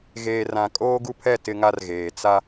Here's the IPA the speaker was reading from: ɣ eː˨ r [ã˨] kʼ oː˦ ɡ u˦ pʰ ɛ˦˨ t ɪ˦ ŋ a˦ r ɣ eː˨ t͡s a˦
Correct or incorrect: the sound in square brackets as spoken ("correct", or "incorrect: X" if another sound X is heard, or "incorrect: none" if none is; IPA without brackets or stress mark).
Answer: correct